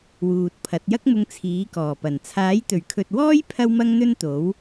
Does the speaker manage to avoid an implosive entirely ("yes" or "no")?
yes